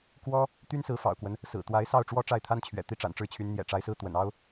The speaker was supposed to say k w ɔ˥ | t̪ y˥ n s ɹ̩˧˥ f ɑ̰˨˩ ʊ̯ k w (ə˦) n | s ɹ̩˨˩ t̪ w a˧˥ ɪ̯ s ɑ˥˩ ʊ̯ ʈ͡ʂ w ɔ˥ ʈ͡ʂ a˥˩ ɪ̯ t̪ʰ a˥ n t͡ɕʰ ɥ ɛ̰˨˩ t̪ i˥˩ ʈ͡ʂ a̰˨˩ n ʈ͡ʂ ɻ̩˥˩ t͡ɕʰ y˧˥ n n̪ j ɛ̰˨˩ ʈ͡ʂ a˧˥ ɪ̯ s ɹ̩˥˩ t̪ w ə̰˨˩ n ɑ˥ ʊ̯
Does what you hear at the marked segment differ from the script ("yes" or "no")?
no